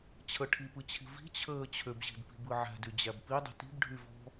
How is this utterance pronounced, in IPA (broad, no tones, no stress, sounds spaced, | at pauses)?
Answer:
t͡ɕʰ ə ʈʰ i p ɯ t͡ɕʰ i̤ v i̤ t͡ɕʰ əː t͡ɕʰ ø b ʑ i̤ d p i̤ b ɯ ʕ æ̤ d y d͡ʑ æ b p i dˤ i̤ t i̤ b ɖʱ y v ɔ̤